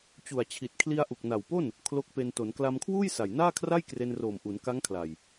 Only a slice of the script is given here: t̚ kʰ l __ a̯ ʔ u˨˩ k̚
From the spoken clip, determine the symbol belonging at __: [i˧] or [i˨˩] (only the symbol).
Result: i˧